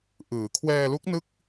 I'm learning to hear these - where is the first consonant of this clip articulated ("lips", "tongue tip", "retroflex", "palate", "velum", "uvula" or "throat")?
throat